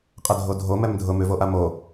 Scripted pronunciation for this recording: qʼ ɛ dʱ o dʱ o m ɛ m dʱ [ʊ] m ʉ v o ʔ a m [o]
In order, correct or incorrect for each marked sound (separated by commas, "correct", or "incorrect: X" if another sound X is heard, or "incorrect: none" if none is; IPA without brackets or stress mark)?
correct, correct